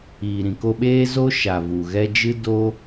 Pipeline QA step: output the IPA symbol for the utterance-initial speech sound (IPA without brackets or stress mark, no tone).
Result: iː